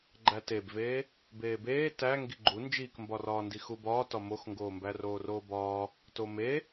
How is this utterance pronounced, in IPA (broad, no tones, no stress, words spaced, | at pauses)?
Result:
ɡ͡ǃætebveː | beːbeː tæ ŋɡiɡ͡ǃu nd͡ʒiːkmbɒrɒːndi xubɒːtɒ moxŋɡoːmbæ roːroːbɒː | tome